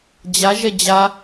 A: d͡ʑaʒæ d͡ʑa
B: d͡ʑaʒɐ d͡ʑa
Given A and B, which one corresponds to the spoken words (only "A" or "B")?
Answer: B